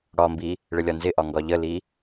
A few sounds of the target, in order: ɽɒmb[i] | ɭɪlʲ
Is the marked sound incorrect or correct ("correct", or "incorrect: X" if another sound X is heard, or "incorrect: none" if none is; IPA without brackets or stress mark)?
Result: correct